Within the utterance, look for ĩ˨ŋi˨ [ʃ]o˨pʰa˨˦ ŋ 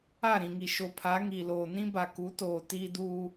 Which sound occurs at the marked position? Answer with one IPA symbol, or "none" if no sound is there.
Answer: ʃ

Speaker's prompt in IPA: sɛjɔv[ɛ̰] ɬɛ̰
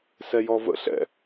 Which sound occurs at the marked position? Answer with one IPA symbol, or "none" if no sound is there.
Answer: ə̰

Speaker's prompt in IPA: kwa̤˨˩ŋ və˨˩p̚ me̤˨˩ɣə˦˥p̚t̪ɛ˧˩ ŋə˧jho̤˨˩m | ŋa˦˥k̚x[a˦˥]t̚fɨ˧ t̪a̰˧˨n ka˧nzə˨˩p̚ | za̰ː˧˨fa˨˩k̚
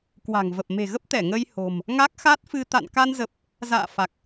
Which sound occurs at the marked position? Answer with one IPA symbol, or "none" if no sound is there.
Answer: a˦˥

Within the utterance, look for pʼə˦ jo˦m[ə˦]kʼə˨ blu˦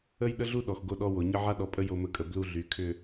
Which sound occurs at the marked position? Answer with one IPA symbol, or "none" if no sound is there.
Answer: ə˦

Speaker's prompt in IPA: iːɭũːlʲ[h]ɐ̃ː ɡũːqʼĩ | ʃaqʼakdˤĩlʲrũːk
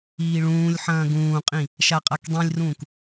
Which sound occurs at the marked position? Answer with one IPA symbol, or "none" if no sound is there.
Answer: ħ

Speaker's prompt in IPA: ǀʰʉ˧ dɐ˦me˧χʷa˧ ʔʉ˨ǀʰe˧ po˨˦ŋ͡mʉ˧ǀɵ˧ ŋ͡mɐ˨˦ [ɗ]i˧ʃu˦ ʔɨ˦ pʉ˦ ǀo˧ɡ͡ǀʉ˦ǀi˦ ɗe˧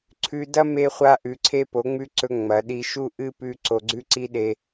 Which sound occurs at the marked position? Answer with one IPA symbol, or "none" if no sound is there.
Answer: ɗ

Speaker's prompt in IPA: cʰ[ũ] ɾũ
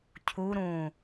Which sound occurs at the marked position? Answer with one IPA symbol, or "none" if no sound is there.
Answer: u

